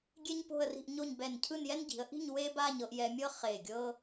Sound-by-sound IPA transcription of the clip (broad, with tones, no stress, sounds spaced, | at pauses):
ɡʲ e˥ ɲ p o̤˥˧ ə̯ r i̤˥˧ ʔ ɲ o˥˧ ɲ b ɛ˧˩ n cʰ ɯ˥˧ n j ɛ˥ n ɟ i̤˩˧ ə̯ ʔ i̤˥˧ ɲ w e˥ b a˥˧ ɲ ɤ˧ ʔ j ɛ˧ mʲ ɤ˥ χ e˧˩ ɡʲ ɤ˥